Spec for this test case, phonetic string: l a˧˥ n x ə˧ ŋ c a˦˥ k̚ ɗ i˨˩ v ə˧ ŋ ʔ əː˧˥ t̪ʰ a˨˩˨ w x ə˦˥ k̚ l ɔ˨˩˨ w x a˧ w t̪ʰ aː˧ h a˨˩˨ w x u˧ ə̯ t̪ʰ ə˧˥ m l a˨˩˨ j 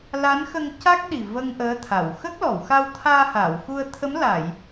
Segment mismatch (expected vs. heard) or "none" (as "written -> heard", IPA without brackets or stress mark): none